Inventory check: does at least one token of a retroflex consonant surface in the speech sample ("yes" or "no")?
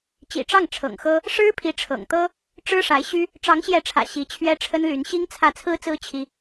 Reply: yes